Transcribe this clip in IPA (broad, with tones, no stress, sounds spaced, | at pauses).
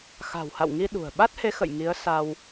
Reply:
x a̤˨˩ w h a̰˧˨ w ŋ i˧ ɗ ṳ˨˩ ə̯ ɓ a˦˥ t̚ h e˨˦ x ə̰˧˨ j ŋ i˨˦ ə̯ s a˧ w